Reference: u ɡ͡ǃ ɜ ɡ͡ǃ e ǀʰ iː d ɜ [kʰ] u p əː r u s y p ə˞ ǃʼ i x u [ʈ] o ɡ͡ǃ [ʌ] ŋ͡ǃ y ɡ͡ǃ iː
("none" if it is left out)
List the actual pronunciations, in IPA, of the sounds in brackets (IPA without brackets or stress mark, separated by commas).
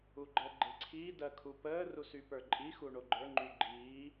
kʰ, ɳ, ə˞